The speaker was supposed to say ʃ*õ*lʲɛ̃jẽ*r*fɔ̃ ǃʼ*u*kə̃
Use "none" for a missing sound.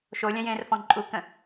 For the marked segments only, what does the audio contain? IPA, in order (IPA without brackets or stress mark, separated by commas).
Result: o, r, u